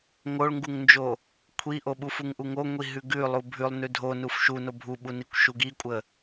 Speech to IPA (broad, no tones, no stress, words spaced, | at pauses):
ŋoɭŋɡuŋnd͡ʒo | kʷʰiʔoɓuf uŋʔuŋoŋʷi ɦʉɡʉ lˠubʱʉlˠ nʉdʱonuf ʃuno bʱuɓunikʷ ʃuɡikʷʼə